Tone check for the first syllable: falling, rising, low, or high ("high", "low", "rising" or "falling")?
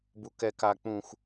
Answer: low